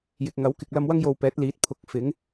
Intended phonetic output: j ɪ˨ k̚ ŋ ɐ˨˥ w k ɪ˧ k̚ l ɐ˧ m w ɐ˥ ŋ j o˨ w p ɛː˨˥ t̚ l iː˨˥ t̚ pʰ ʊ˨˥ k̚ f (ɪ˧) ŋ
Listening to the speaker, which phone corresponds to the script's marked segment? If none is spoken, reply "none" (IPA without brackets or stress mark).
ɪ˨˥